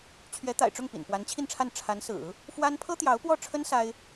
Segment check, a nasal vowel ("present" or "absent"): absent